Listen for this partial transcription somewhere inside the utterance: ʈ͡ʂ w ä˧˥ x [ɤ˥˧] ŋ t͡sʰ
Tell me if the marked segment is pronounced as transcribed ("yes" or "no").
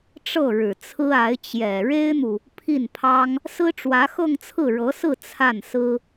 yes